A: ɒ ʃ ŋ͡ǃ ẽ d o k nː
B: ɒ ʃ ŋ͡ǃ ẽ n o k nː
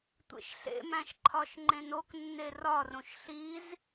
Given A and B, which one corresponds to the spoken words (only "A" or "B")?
B